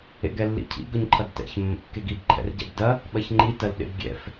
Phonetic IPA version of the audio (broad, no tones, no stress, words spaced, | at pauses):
ḛɡɛlːḭcʰḭ ɡɵɲǃʰɐɡtɛ̰ç mːə̰kːeɡib ǃʰɛ̰rɟɛ̰bdɐ | ɓɐçŋ͡ǃi tɐlɗḛbɡʲɛ̰f